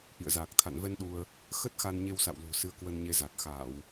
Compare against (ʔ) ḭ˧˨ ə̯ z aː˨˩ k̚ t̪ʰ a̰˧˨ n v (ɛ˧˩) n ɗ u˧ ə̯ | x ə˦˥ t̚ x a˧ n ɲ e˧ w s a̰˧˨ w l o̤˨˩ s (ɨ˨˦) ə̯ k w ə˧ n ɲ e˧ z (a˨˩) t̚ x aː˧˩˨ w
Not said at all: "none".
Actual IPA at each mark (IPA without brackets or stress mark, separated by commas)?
ʔ, ɛ˧, ɨ˧, a˨˩